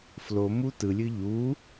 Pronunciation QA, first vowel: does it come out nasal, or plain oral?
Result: oral